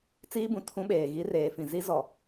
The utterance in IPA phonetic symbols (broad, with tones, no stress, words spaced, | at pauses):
t͡siː˦bũ˨tʰũ˦ɓeː˨ ɣi˦reː˨ fĩ˨zi˦ zɔ˨